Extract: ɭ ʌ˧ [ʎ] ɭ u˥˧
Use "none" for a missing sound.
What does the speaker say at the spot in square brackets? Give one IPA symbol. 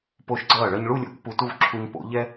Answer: ɲ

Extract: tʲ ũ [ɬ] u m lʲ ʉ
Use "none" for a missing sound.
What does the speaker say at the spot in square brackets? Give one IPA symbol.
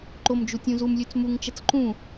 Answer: z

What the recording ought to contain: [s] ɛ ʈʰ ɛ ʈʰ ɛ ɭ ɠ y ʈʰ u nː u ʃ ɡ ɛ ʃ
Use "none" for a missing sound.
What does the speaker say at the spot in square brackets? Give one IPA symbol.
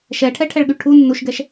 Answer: ʃ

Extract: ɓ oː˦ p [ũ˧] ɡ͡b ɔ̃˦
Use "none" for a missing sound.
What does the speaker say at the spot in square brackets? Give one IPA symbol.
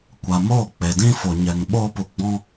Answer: u˧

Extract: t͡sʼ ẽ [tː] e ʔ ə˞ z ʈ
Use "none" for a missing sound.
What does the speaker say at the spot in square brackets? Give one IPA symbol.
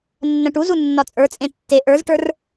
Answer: tː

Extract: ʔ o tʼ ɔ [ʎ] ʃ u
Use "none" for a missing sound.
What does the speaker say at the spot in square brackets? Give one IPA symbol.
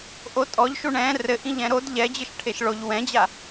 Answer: ʎ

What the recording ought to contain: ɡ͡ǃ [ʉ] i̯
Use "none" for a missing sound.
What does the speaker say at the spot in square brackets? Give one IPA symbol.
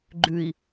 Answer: ʉ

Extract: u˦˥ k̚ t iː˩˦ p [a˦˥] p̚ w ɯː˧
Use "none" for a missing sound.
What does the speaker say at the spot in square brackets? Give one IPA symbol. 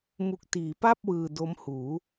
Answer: a˥˩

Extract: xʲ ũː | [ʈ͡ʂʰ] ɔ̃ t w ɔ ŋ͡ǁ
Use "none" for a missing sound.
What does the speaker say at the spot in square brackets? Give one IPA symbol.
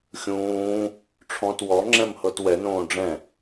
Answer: ʈ͡ʂʰ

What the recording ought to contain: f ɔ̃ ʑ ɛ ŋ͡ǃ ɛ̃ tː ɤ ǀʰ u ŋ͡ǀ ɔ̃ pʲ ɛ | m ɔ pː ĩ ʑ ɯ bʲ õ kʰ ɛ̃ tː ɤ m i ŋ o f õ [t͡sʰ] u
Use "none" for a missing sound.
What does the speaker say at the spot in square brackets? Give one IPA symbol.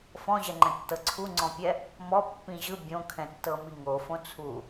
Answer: t͡sʰ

